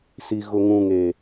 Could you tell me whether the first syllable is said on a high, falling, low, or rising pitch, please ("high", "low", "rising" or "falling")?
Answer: low